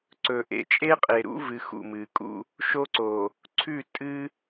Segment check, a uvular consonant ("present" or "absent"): present